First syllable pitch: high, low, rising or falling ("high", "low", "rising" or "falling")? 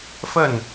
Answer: falling